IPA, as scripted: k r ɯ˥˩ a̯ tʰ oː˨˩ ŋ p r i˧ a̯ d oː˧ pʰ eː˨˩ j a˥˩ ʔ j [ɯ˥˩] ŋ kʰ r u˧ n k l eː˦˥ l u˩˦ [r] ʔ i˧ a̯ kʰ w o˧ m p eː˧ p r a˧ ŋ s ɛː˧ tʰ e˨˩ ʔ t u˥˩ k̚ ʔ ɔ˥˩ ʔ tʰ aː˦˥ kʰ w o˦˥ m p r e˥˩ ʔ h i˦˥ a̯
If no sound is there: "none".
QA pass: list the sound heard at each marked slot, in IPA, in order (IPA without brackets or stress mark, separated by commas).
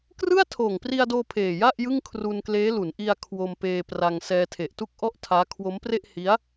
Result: ɯ˥˩, n